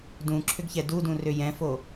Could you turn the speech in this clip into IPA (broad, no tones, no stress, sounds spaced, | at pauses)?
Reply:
d ũ ǁʰ ʏ ɡ ç ɛ d u d ũ r ʏ j ɛ̃ f o